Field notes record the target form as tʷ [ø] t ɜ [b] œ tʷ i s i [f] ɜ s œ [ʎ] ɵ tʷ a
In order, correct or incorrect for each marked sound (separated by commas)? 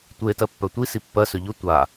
incorrect, incorrect, incorrect, correct